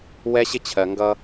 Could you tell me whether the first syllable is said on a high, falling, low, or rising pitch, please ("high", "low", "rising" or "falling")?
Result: high